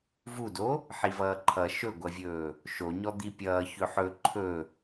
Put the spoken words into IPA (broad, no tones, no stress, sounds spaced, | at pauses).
v u d o | ħ i v ʌː ǃʰ ʌ ʃ ɵ ɡʷ ʌ vʲ ɵː | ʃ o ɲ ɔ d̪ i pʲ ʌː ç ɵ ħ ɵ ǃʰ ɵ